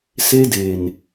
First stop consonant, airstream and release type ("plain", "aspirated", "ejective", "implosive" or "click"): plain